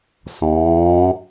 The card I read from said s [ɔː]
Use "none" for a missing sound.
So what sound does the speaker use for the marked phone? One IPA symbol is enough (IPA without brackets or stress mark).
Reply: ɔ̃ː